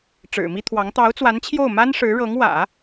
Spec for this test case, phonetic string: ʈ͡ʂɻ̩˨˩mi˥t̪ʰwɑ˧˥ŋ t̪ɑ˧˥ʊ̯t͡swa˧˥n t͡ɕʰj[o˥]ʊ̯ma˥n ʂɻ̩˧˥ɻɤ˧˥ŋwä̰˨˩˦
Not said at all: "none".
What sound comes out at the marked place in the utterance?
o˥˩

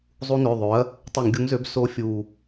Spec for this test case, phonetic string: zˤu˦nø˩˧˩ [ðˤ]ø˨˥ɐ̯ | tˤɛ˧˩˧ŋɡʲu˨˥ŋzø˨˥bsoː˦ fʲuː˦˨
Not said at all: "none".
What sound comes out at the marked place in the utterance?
ðˤ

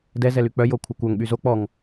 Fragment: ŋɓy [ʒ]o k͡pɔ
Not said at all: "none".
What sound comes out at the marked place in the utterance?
z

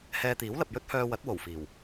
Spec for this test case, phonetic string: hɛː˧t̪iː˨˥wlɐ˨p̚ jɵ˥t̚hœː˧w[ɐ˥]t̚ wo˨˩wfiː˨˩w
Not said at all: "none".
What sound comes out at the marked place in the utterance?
ɐ˨˥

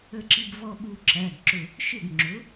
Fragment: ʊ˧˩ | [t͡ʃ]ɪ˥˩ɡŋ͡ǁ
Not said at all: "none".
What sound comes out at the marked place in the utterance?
ʃ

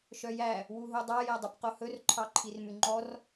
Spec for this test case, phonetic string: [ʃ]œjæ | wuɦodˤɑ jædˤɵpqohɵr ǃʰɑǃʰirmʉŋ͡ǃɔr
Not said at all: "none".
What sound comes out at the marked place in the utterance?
ʃ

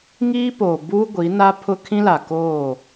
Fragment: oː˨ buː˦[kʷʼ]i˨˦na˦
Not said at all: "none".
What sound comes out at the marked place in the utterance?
ɡʷ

